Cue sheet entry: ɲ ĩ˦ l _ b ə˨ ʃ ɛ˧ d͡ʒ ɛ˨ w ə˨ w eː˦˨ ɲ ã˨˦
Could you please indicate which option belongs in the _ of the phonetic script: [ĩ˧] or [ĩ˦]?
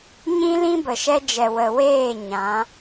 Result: ĩ˦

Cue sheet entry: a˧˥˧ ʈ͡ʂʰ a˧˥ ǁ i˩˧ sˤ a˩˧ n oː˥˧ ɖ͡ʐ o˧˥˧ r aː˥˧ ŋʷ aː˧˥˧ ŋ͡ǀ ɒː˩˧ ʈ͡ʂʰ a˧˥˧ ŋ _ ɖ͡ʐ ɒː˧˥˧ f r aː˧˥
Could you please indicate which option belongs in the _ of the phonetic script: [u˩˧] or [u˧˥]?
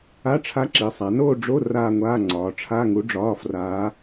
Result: u˧˥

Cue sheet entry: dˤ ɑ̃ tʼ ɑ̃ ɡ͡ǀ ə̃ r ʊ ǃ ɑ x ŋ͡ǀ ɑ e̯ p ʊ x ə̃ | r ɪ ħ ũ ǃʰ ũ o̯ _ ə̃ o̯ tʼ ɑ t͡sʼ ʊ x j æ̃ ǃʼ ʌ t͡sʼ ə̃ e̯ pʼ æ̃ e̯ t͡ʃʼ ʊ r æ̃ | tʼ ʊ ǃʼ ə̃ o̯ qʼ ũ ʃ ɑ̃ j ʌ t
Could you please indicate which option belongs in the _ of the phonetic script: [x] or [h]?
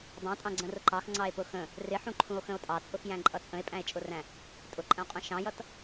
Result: x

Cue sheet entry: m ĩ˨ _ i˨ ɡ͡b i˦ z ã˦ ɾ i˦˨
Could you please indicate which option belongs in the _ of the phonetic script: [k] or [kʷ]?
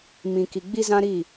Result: k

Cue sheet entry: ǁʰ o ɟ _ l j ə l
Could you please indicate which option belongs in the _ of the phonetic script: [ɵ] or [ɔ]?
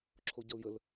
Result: ɔ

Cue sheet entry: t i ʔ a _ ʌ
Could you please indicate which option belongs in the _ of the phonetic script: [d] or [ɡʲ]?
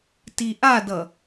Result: d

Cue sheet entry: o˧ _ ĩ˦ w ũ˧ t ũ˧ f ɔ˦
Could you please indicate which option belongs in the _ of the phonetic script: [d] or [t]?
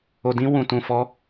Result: d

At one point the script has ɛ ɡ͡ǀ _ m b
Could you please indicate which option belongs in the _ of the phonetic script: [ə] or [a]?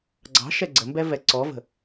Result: ə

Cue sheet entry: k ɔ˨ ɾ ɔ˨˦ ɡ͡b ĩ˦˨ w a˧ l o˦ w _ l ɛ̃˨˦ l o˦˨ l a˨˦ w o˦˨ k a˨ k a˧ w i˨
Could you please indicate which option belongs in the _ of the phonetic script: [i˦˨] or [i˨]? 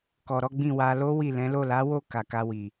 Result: i˦˨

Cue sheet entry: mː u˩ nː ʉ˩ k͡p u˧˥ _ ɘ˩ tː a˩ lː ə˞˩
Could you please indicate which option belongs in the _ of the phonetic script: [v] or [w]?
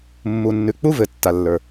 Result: v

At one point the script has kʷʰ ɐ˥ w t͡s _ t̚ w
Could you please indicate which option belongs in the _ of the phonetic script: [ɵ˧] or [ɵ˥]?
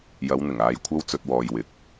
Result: ɵ˧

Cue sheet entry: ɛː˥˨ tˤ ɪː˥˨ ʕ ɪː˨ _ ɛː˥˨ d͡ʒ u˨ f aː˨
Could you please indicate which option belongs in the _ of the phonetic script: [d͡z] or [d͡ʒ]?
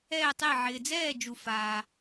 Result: d͡z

